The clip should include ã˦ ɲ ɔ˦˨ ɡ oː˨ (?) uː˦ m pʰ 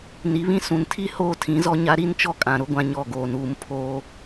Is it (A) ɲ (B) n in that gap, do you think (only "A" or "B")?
B